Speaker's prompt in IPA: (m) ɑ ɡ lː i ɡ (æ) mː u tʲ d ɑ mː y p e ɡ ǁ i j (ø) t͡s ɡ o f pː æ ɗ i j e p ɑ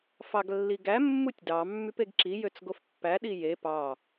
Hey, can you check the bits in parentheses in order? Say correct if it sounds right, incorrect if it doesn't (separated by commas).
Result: incorrect, correct, correct